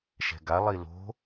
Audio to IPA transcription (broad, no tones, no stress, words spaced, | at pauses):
ʃɛ̤ɡa lˠilo̤